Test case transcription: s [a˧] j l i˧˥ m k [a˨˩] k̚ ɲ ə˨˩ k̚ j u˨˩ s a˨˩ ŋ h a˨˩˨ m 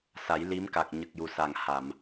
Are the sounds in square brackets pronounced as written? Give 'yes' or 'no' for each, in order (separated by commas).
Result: no, yes